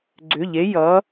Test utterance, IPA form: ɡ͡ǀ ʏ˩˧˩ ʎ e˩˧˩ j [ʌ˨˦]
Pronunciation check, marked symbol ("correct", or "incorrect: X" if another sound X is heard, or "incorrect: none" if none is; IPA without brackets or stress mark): correct